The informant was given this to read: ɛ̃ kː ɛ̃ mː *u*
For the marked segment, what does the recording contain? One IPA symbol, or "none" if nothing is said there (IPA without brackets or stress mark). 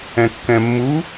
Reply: u